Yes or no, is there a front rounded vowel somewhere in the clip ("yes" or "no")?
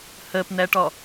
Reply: no